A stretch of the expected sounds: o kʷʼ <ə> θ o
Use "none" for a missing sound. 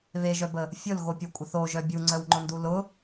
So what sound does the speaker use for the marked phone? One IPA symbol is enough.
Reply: ə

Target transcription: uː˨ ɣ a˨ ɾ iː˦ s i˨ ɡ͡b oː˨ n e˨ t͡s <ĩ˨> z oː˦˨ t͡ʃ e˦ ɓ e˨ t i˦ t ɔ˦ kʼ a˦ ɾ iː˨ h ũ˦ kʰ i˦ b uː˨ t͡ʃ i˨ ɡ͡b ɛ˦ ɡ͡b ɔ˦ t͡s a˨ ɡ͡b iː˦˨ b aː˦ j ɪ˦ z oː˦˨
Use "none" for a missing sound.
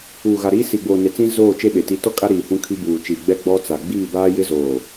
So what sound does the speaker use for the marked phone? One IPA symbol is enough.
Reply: ĩ˦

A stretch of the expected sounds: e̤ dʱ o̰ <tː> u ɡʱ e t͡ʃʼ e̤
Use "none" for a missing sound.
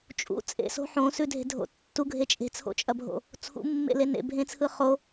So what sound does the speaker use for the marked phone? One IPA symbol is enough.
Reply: tː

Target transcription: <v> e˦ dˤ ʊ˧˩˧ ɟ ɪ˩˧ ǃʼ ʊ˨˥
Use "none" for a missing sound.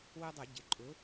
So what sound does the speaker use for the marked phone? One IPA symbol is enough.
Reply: w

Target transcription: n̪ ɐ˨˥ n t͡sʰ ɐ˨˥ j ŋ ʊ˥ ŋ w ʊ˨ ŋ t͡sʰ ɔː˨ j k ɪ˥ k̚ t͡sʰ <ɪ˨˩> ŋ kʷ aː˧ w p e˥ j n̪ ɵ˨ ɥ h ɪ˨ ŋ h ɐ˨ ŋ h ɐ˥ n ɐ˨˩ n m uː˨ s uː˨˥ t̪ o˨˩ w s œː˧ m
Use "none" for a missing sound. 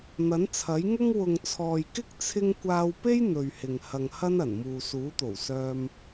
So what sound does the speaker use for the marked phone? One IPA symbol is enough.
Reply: ɪ˥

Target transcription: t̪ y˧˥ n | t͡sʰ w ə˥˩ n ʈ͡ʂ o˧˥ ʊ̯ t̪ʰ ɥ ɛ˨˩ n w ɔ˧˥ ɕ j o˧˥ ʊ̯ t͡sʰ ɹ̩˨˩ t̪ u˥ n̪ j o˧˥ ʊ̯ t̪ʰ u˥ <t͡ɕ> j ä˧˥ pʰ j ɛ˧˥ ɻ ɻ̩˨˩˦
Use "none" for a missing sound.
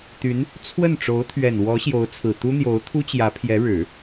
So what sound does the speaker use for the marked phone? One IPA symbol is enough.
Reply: t͡ɕ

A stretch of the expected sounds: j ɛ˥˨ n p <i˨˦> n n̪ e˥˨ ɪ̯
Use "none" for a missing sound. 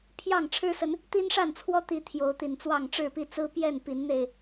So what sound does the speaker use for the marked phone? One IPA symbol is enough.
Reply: i˨˦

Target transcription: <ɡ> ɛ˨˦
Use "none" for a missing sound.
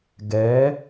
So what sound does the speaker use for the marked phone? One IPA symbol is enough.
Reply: ɡ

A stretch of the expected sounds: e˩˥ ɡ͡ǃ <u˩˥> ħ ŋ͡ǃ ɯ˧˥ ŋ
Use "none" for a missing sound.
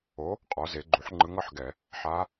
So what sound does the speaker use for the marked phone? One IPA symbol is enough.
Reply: u˩˥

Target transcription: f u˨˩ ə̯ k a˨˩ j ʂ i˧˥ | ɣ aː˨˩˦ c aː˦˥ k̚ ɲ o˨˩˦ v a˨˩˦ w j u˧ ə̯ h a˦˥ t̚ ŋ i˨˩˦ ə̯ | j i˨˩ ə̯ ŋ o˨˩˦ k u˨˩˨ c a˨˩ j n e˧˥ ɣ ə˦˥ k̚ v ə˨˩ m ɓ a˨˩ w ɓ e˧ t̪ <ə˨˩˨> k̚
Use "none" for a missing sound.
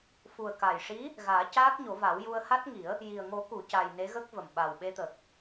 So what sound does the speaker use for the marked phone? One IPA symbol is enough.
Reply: ə˨˩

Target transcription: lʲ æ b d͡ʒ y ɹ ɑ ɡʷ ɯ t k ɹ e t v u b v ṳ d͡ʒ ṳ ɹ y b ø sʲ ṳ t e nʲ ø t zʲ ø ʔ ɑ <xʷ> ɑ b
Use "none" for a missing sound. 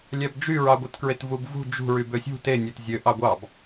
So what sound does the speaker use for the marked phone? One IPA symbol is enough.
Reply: ɡʷ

